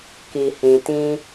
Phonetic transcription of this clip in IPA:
ki˨hĩ˨ tĩ˧

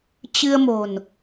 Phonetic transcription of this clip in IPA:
t͡ɕɨ˧ə̯mo̤˨˩n

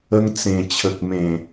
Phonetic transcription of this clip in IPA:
ə˧ŋt͡sẽ˨˩ t͡ɕʰə˨k̚mẽ˨˩

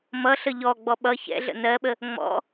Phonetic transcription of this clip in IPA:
mʌ ɬəʎɔɡ͡bɔ ɓʌ çɛ̰ ɮə̰nɜɓə | ŋ͡mɔ̰

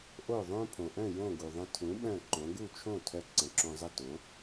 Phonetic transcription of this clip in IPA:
ʔo˥˩ðˤõ˥ pʰõ˩ʔœ̃˥˩ jõ˥˩ ɡu˩ðˤə̃˧ tʰũ˩˥ ɓœ̃˥˩ǃõ˩˥ ɡu˥˩t͡ʃʰõ˥˩tʰœ˧ ǀə̃˩˥ǁõ˧zˤə˥˩ tõ˩˥

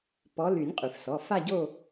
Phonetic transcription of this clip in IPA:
pɔ˨˦ ly˨˩˦nʲqʼy˩fsɔ˩˧˩ fa˥˧ɟo˥˧

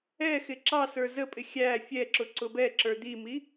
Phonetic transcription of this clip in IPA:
ɛxɪ ǁɑsə˞ zəpʼɪ xʲæ fʲɛǁʊ ǀʊbɛǁə˞ d̪imi

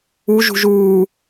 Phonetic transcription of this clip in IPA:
u ʒṳʒuː

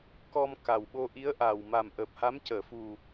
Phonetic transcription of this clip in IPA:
kɔ˧mka˨˩wɓo˧ ʔi˧˥ə̯ʔa˨˩w ma˨˩m ʔəː˨˩p̚ha˧˥mcəː˨˩˨ fu˨˩

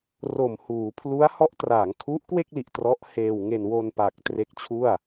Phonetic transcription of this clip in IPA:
ro˨˩mhuː˩˦ pʰlu˦˥a̯hɔ˦˥ʔ traː˩˦ŋkʰu˦˥ʔkwe˥˩k̚li˨˩ʔ trɔ˦˥ʔheː˧wŋe˧n wo˧npa˨˩k̚ tre˦˥k̚t͡ɕʰu˥˩a̯

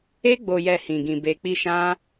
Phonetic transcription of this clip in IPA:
e˦ɡ͡bo˧jɛ˧ hĩ˧ɡĩ˧ be˧k͡pi˦ʃã˦

